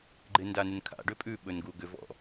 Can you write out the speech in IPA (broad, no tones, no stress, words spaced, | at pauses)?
ɡ͡ǃɪndanɪnkʰa̰ ɖʏpʼʉ ɓɵnɡuɡʏv ɔ̰